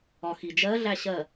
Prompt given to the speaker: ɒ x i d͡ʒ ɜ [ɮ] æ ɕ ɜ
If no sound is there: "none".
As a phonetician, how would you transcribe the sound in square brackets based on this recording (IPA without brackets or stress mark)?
ɮ